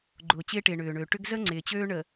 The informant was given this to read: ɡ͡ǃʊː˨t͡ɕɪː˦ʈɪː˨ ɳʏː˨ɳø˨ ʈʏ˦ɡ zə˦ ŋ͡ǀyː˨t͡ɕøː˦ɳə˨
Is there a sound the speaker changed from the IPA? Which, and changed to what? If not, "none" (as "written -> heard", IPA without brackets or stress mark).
yː˨ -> ɪː˨